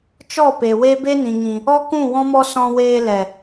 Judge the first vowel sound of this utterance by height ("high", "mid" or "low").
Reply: mid